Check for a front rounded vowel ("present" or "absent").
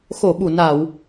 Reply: absent